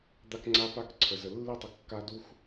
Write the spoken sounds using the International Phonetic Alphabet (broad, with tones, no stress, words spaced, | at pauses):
d̪a˦kŋ͡ǀa˦pa˦k ǀʰə˨zə˨ lːi˦tˤə˨ kːa˦du˦x